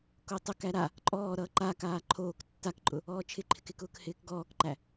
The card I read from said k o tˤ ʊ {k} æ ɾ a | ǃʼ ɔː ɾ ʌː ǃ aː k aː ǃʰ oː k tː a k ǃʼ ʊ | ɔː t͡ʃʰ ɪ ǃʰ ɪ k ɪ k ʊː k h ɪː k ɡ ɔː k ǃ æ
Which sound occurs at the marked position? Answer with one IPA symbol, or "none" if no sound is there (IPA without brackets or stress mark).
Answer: k